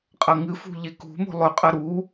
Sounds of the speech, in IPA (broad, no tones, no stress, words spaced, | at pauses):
qʼɐŋɨfṳ ʎekṳmo̤ lˠɵqʼɐ ɾu